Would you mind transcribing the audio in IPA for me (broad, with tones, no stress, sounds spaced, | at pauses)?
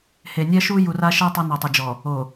h e˨ nʲ ɛ˦ ʃ u˦ j u˨ r a˦ ʃ ɛ˦ tˤ o˦ n o˨ tˤ i˨ d͡ʒ ɔ˨ | o˨